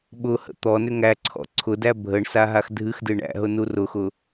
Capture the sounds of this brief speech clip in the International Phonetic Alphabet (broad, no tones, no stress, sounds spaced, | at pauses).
ɓ ʊ h ə̰ t̪ ɔ n ʏ ŋ æ ǀʰ ɔ̰ ǀʰ ʊ d æ bʱ ə ɳ s a ɦ a x dʱ ɨ x d ɨ ɳ æ̰ ɦ ʊ n u r ʊ x ʊ